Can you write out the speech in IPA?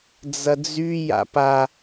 d͡zɐd͡zy ja̰pa

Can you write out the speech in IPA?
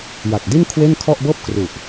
ja˨˩k̚di˥˩n kʰwe˥˩nkʰɔ˥˩ʔ bɤː˥˩p̚kru˨˩ʔ

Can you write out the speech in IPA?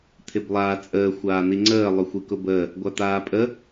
t̪ʰɪblˠaːt͡sʼəː xʷaːn̪iŋ͡ǀəː lˠʊxʷikʊbəː | ɡʷat̪aːpʼə

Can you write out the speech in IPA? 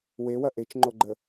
wewɐ ʔet͡ʃŋ͡ǃoɡ͡ǃə

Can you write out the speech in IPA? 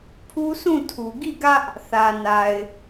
pʰu˦sũ˦˨tʰu˨ ɡi˦˨ɡä˦ʔ | θä˨na˨ɪ̯

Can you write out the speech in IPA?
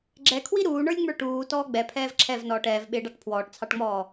ɡ͡ǁɛkʰwi ɾuːɳə˞lʲŋ͡mə˞ ʈuːtɔː ɡ͡bɛpʰɛːv ǁʰɛvnɔːʈ ɛːvɓɪːɖɑʈ pʰwɔːʈt͡sʰɑʈŋ͡mɔː

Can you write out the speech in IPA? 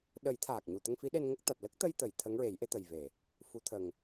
ɗə˨˩˦j t̪ʰaː˨˩k̚ɲu˨˩ t̪ə˧ŋfi˧˥ɗe˧n ŋə˦˥k̚ t̪a˨˩t̚ lə˦˥k̚t̪ə˧jt̪ə˨˩˨j t̪ʰə˧˥ŋɹe˨˩˦jʔe˧˥t̪ə˨˩j ve˨˩˨ | fu˨˩˦t̪ʰə˨˩ŋ

